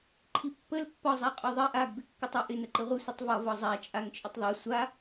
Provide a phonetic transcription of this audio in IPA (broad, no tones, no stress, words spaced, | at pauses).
ǃʰipːəl pːɒ zˤaqʼɒðˤɜʔ aɡ bɪkːɪtˤɜʔɪ nəǃɘʁʷɪ sʷɪtˤvɒ vɒzˤa t͡ʃʼaŋt͡ʃʼɘtˤðˤe sʷa